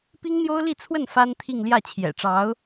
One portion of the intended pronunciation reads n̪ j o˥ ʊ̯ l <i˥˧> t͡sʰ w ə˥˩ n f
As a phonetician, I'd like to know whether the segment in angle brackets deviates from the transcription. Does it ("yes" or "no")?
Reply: no